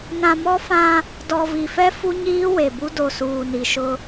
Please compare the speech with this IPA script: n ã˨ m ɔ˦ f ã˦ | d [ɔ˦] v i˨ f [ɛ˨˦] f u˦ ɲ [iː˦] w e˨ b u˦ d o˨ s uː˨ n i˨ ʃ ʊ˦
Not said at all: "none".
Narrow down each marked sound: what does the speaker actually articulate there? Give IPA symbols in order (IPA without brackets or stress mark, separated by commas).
ɔ˨, ɛ˦, iː˦